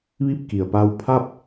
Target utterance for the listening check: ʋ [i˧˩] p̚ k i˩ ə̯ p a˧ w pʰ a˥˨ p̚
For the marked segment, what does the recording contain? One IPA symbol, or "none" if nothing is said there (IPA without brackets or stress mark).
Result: i˥˨